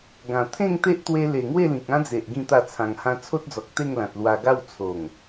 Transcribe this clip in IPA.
ɡ ã˨˩ t̪ʰ ẽ˥˧ ŋ t̪ e˦ ʔ t̪ w e˧ l e˨˩ ŋ w e˥˧ l ĩ˨ k̚ ã˦ d͡z e˨ ʔ ɡ ĩ˥˧ t̪ a˥˧ t͡sʰ ã˧ ŋ h ã˧ t͡sʰ o˦ t̚ d͡z ɔ˨ k̚ t̪ e˥˧ ŋ l ã˨ t̚ l w a˧ ɡ a˥˧ w t͡sʰ o˨˩ ŋ

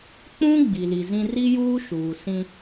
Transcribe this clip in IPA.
k͡p ũ˦ ɡ͡b i˨ l i˨ z ĩ˦ r i˦ j uː˦ ʃ uː˨ s ĩ˦

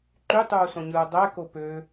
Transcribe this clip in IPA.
ǃ y tˤ uː s õ ɲ ɯː dˤ æ k o p ø

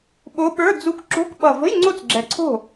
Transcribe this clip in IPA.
ɓ o˧˥ ɓ ə˞˧˥˧ d͡z u˧˥ k ǁ o̤˧˥˧ k ɓ ʌ˨˩ v ə̤˧˥˧ j ŋ͡ǀ o˥˩ t͡s ɡ͡ǁ ɛ˨˩ ǀʰ o̤˥˩

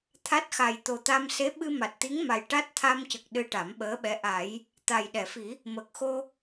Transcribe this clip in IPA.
t̪ʰ a˦˥ t̚ x a˨˩ j t̪ o˨˩ t̪ a˧ m s e˧˥ ɓ ɨ˧ m a˨˩ t̚ t̪ i˧˥ ŋ m a˨˩ j ʈ a˦˥ t̚ t̪ʰ a˧ m c ə˨˩ k̚ ɗ ɨ˧ ʈ a˨˩˦ m ɓ əː˧˥ ɓ ɛ˧˥ ʔ a˨˩˦ j | t̪ a˨˩ j ɗ ɛ˨˩˨ f i˨˩˦ | m ə˨˩ k̚ x o˧

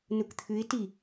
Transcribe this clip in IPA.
n u k t̪ʰ ʉ ɪ̯ t i

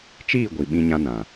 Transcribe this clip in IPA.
t͡ʃ iː˦˨ ɡʷ i˨ ɓ ĩ˧ ɲ ã˧ n ã˨

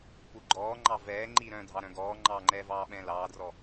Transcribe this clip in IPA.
p u ɡ͡ǃ ɔː ŋ͡ǃ ɑ v ɛː ŋ͡ǃ i ɾ œ̃ dʱ ɑ ɾ œ̃ ɡ ɔː ŋ͡ǃ ɑː ŋ͡ǃ ɛː v ɑː ɓ ɛ̃ l ɑː d r ɔ

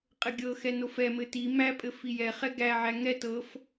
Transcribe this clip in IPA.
qʼ ɘ ɡʲ ɤ x ɛ n o f ɛ m ɘ t i m æ pʼ ɘ f i j ɛ χ ɛ ɡ æ ʕ æ ŋ ɛ t ɤ f

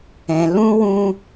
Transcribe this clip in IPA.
ɛ̃˧ l ũ˦ w ũ˦

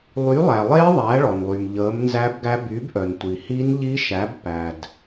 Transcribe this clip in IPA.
lˠ y˩˥ lˠ æ˩ lˠ e˧˥ ðˤ æ˩˥ ɭ ɔ˩ n lˠ y˩ m ʎ əː˩˥ m n z æ˧˥ b ɡ æ˧˥ b y˩˥ b ʔ œ˩ n tʷ i˩ h i˧˥ n ʎ i˧˥ ʃ æ˩˥ b p æ˩ d

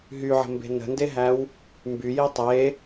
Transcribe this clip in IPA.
ɦ y ʕ ə̤ m b e̤ n ə̤ n d e ɦ æ w | m b y j i tˤ e

